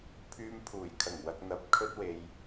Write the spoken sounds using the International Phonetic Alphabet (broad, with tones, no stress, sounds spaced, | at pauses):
pʰ yː˧ m pʰ uː˨˩ j kʰ ɐ˨˩ ŋ w ɐ˨ k̚ n̪ ɐ˨ p̚ kʰ ɵ˥ t̚ w e˧ j